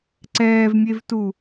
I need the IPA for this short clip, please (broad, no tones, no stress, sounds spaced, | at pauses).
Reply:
ǀ ɛː v mʲ e v t u